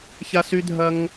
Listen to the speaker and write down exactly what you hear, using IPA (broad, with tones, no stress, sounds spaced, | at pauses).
ç a˧ s y˧ dʱ ɐ˧ ŋ